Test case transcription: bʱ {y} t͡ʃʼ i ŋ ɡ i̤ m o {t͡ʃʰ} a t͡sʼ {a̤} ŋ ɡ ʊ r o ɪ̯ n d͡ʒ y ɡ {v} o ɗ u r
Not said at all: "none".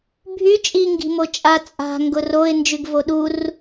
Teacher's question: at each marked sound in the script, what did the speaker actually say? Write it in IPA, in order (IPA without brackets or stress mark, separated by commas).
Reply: y, t͡ʃʼ, a̤, v